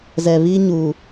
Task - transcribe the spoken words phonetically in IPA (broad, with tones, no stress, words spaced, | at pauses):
zɛ˨βi˦ɲu˨